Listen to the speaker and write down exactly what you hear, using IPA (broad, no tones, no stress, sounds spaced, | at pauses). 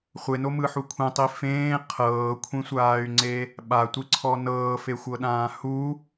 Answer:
χʷ e n o m ɯ ħ u kʷʰ ẽ tˤ i f ẽː qʰ ɤː kʷʰ ĩ sʷ aː y̯ ŋ͡ǀ e | ɓ a tʷ i ǀʰ ɔ n ɤː f e xʷ ɤ ɗ ãː h u